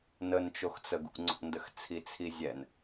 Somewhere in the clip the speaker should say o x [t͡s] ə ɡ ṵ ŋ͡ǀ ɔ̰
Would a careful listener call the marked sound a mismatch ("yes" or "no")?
no